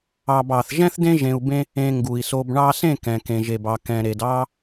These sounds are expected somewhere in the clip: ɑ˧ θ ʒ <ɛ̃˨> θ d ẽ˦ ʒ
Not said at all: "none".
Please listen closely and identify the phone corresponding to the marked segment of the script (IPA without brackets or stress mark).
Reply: ɛ̃˦